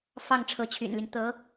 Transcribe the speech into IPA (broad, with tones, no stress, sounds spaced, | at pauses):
f ɑ˥˩ ŋ ʈ͡ʂʰ ɤ˧˥ t͡ɕʰ y̰˨˩ n l y˦ n t̪ ɤ˧˥